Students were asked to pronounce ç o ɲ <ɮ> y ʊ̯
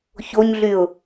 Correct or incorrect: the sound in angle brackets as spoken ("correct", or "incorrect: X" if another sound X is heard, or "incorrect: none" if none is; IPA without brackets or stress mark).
correct